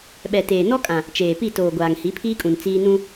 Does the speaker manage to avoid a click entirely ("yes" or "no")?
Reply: yes